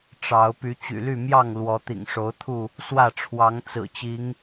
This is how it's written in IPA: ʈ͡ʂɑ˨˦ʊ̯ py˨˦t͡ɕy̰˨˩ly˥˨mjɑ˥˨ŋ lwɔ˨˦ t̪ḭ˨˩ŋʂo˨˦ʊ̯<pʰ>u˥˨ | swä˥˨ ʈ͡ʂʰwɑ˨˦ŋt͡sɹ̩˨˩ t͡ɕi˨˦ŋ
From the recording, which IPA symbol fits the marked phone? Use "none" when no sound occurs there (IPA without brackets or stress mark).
t̪ʰ